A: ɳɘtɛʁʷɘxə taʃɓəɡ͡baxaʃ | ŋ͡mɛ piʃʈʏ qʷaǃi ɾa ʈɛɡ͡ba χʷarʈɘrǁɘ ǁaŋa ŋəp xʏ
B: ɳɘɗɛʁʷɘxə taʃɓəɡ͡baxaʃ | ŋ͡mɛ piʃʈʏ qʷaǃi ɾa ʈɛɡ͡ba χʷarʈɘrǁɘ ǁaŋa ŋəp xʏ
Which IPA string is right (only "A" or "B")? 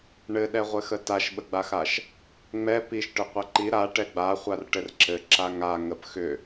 B